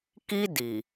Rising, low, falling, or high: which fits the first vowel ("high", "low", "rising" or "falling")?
high